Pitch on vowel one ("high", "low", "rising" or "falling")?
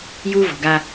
high